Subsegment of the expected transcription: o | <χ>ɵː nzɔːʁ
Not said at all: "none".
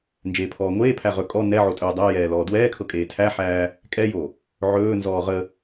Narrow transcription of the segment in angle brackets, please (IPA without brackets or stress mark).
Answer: ʕ